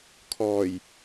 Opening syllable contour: low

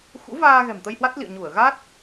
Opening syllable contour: rising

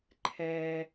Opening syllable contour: low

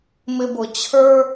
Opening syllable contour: high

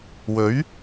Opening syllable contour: rising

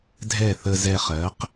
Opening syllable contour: falling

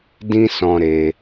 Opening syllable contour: high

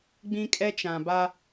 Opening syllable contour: high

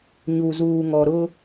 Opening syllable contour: low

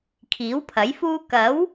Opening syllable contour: rising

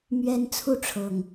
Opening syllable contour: high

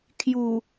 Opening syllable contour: low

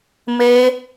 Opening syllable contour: high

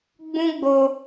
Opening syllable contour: high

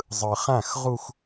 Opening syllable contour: low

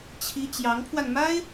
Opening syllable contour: high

